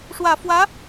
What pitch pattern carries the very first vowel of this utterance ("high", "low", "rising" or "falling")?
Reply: low